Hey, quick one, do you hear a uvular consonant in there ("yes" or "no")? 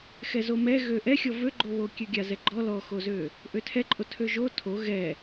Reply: no